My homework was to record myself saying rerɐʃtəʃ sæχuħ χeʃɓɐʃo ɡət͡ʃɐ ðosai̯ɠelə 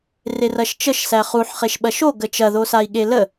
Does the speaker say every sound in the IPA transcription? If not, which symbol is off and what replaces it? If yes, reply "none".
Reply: t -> t͡ʃ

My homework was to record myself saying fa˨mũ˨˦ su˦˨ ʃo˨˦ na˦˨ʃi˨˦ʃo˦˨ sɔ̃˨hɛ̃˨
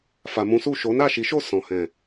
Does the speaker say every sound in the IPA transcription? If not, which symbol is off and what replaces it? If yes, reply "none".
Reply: none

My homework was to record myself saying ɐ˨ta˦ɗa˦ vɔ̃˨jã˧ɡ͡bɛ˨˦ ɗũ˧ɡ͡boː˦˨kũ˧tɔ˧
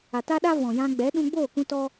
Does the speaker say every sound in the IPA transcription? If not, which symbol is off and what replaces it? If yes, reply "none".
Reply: ɐ˨ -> a˨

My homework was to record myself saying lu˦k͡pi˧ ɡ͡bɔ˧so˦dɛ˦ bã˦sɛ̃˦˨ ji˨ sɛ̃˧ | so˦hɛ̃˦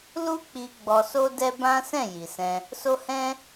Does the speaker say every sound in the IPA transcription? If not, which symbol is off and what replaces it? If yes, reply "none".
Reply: none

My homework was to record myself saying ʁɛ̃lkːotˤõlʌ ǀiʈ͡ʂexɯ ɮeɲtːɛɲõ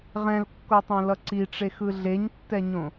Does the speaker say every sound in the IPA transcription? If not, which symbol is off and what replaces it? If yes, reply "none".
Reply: none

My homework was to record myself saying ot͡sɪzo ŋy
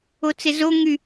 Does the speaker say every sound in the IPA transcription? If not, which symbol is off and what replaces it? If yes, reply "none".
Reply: none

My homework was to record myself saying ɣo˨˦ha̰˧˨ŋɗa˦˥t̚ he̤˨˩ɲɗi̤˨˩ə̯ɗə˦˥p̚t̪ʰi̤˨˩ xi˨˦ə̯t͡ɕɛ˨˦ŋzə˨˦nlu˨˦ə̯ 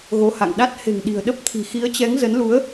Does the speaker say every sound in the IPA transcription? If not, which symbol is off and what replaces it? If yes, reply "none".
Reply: ɲ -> ŋ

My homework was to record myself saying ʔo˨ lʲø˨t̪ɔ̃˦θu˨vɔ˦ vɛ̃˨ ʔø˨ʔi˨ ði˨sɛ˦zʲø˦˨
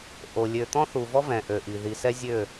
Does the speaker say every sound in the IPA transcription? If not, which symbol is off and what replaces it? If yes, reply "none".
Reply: none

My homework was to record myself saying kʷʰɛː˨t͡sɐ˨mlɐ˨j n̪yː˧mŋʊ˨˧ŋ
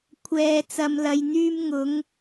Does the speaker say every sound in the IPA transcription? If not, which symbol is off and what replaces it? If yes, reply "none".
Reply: none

